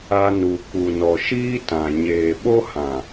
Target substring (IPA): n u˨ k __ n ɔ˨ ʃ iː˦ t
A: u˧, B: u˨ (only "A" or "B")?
B